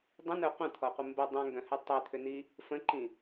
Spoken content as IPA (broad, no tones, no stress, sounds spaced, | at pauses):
dˤ ə̃ n œ qʷ ə̃ t̪ʰ ɔ qʷ ɪ m b ə dˤ œ̃ ŋ ɡ œ̃ h ʏ tˤ ø t̪ʰ ʏ n i | f ə̃ ǃ ĩ